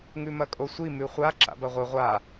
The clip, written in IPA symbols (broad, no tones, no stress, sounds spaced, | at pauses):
ŋ ʉ m ɐ kʼ o sʷ i m ʉ χʷ a ǁ a̰ b ɐ ʁʷ ɨ ʁʷ a